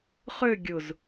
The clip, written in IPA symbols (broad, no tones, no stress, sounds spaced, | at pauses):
χ ø ɡʲ ʊ z